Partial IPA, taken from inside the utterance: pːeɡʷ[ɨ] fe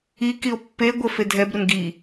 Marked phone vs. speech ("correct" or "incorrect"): incorrect